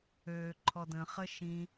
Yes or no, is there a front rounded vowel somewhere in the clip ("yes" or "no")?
yes